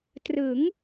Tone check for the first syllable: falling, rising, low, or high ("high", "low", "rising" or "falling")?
rising